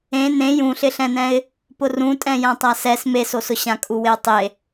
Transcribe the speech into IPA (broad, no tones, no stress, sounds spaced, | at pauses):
ẽ n ẽ j ũ ɬ ɪ ɬ ɛ̃ n ɛ̃ ɪ̯ | p ʊ r ũ tʼ ɛ̃ j ã tˤ a s ɛ s m e s o s ʊ ɕ ã kʼ u w ɪ ə̯ tˤ e